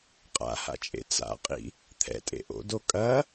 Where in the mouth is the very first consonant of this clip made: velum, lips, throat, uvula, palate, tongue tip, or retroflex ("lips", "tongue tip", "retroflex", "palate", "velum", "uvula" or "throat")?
uvula